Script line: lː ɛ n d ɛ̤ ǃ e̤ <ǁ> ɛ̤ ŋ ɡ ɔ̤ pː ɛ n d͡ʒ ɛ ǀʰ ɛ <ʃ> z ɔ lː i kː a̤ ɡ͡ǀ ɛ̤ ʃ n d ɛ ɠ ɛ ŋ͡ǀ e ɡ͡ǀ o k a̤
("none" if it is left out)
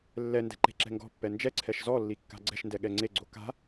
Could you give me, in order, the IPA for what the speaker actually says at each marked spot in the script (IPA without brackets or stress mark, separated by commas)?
ǁ, ʃ